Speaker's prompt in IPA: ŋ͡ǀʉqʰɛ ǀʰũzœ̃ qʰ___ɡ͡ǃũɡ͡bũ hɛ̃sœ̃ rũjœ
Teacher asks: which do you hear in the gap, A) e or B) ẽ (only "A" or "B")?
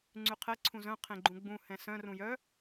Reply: B